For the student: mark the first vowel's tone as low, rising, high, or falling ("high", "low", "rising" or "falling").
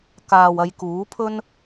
low